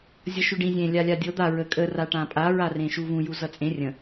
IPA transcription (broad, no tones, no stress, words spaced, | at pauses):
zʲʌʃʉɖĩ zʲẽ lʲalʲadʲɤ d̪a ɹəkʼə raʈãpʼa ɹarẽʃuvũ juzʌt͡sʼẽ rʲə̃